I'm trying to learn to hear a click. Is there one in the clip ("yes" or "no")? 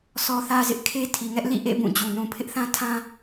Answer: no